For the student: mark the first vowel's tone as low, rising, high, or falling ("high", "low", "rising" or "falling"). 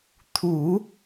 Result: low